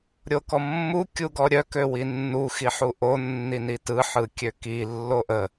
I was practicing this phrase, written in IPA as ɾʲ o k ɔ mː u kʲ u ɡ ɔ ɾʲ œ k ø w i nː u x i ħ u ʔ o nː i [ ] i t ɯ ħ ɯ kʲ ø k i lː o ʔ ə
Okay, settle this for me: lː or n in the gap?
n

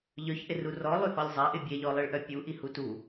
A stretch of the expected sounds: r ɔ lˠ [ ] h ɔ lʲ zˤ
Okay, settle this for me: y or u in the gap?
y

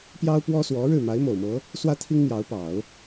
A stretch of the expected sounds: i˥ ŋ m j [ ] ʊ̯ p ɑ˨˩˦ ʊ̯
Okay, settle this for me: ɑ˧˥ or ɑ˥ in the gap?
ɑ˧˥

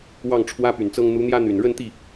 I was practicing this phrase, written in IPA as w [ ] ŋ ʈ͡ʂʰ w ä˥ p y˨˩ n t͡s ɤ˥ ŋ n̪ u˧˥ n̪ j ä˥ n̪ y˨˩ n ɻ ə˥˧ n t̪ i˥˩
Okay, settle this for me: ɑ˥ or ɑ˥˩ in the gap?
ɑ˥˩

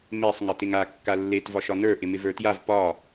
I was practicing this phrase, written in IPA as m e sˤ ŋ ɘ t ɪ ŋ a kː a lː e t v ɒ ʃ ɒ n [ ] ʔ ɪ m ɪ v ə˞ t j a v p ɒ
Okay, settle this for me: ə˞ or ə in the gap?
ə˞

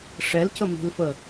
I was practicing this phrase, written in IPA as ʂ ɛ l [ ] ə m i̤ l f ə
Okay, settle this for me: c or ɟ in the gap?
c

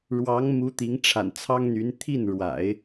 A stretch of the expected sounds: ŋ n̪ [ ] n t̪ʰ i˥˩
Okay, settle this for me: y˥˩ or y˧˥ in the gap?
y˧˥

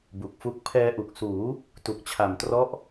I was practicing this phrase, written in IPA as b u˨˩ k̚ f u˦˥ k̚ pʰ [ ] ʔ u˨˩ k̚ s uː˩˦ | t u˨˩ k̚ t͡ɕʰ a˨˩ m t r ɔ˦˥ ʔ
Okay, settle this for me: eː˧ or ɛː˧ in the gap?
ɛː˧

